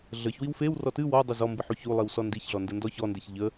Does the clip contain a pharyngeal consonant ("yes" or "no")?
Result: yes